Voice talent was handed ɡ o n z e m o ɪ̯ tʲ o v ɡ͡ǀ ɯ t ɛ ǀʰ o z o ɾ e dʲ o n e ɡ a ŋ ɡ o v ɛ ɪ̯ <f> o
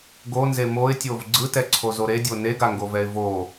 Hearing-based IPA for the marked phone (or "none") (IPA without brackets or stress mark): v